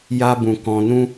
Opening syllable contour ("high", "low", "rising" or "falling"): high